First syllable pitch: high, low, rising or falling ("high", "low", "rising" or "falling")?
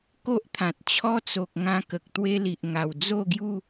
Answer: high